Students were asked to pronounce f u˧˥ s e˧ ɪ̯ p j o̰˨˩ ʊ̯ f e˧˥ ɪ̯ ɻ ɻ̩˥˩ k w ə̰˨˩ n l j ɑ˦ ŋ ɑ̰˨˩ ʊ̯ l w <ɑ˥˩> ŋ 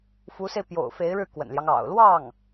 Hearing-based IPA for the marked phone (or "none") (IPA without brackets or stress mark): ɑ˥˩